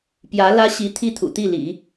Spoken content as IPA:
p j ä˧˥ l ä˥ ɕ i˧˥ t̪ʰ i˥˩ t̪ʰ ṵ˨˩ t̪ i˥˩ l ḭ˨˩˦

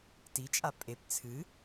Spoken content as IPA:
t i t͡ʃʼ a pʼ e p t͡sʰ ɨ

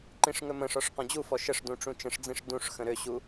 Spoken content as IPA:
ǃ ĩ ʂ ŋ ɵ m ə̃ ʂ ɔ ʂ q ɔ̃ d͡ʑ u f ɔ ʃ ə ʂ d ũ ʈ͡ʂ ũ t͡ʃ ə̃ ʂ d͡z ĩ ʂ d ũ ʂ x ə̃ ɾ ø ɕ u

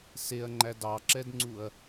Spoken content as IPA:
s e ɐ̯ ŋ͡ǃ æ d ɑ ǁ ɛ d ŋ͡ǀ u ɐ̯

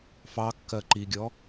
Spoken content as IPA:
f ɑ kː ɜ ǃ i ɡʲ ɔ

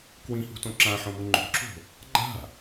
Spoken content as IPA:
k w ĩ h ṳ t õ ǁ ã ħ õ m u ŋ͡ǃ o̤ ǁ o̤ | ɡ͡ǃ a̤

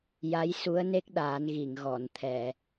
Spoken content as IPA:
j a˧˥ j s u˧˥ ə̯ n e˦˥ k̚ ɗ aː˨˩˦ n ɣ i˨˩˨ ŋ ɣ ɔ˨˩˨ n t̪ʰ ɛ˨˩˨

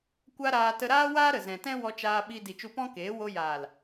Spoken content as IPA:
kʷ a˦ ɾ aː˧ t ə˧ ɾ aː˦ w aː˦ ɾ ə˨ z ɛ̃˨ t ɛ̃˦ w ɔ˧ t͡ʃ aː˧ ɓ i˧ d i˨ t͡ʃ u˧ p ɔ̃˦ k eː˨˦ w o˧ j aː˨ l

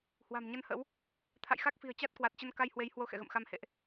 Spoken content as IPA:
h w a̤˨˩ m ɲ ə˧ n h ə̰˧˥ w | t̪ʰ a̰˧˨ j x a˦˥ k̚ f i̤˨˩ ə̯ t͡ɕ a˦˥ t̚ k w a˨˩ t̚ t͡ɕ ə˧ n k a˧ j h w e˨˦ j h w o˧ x ɛ̰˧˨ ɣ ə̰˧˨ m x a˧ m h ḛ˧˨ ʔ

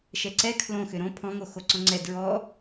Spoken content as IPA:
ʃ ɛ ǀ ɛ kʰ l õ x ʏ ɾ õ pʰ ɔ̃ ŋ o x o ǀ ɔ̃ ŋ͡ǀ ɛ d ɹ ɔ

